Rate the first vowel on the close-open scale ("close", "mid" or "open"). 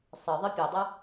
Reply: mid